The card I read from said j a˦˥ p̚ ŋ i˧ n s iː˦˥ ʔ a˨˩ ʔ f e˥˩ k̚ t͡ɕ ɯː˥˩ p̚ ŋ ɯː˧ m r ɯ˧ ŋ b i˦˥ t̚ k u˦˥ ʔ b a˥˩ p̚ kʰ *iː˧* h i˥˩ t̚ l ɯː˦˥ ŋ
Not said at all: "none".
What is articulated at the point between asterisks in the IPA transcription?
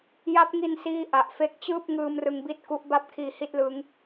iː˧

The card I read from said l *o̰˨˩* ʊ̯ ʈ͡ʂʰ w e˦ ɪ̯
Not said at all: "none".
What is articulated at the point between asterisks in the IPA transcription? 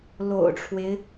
o̰˨˩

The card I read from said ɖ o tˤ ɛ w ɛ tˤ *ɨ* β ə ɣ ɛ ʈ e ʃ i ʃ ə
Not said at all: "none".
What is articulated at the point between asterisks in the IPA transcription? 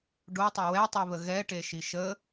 i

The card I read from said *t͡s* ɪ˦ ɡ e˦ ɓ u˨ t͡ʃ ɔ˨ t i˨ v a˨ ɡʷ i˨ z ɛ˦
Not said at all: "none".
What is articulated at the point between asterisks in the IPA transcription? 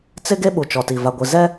t͡s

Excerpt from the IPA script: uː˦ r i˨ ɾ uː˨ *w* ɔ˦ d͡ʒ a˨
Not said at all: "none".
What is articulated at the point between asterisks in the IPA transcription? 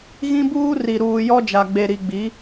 j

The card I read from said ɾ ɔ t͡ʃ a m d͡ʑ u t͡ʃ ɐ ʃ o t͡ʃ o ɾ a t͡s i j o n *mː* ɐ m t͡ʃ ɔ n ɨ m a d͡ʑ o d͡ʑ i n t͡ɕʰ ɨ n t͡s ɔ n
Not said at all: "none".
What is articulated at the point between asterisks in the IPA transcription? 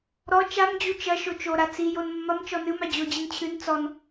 mː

